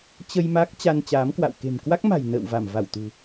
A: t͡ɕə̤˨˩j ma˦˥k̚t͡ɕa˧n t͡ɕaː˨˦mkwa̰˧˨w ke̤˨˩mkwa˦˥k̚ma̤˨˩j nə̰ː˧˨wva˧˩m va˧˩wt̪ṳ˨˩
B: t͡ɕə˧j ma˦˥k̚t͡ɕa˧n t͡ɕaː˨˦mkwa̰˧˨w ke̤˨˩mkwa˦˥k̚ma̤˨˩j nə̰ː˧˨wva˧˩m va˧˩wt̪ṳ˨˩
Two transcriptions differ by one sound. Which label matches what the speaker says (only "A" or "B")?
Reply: B